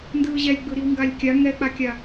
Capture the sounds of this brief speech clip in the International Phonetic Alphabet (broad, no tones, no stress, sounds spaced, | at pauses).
n d ɯː ʑ ɛ lʲ ɡ͡b ɯ ɾ i w ŋ ɡ a lʲ kʲ a ŋ ɛ k͡p a kʲ a